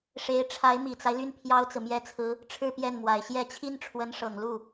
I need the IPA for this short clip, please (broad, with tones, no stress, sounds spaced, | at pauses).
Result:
ʂ e˧˥ ɪ̯ ʈ͡ʂʰ a˧˥ ɪ̯ m i˨˩ t͡s a˦ ɪ̯ l y˥˩ n pʰ j ɑ˥ ʊ̯ t͡s ɹ̩˨ m j ɛ˥ t͡sʰ ɹ̩˥ | ʈ͡ʂʰ ɻ̩˥˧ p j ɛ˥˩ n m w a˨˩ ɪ̯ ɕ j ɛ˥˩ t͡ɕʰ i˥ n ʈ͡ʂʰ w ə˧˥ n ʂ ɤ˨˩ ŋ l u˥˩